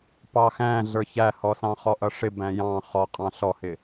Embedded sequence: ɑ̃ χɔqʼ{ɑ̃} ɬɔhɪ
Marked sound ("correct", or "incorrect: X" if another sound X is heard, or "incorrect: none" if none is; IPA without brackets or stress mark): correct